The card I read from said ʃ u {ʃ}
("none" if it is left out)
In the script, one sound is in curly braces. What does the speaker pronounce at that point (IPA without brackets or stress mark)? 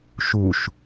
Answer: ʃ